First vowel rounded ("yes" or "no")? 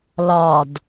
yes